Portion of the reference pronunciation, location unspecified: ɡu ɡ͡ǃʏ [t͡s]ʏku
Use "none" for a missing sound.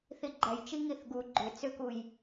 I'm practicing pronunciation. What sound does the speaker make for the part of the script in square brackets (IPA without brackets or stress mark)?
t͡s